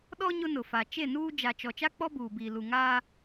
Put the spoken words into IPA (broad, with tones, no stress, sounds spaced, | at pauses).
ɗ ɔ˦ ɲ ʊ˦ n ʊ˨ f a˨ t͡ʃ e˦˨ n uː˦ d͡ʒ a˨ t͡ʃ ɔ˨ t͡ʃ a˦ k͡p ɔ˦ b uː˨ b iː˨ l u˨ ŋ aː˦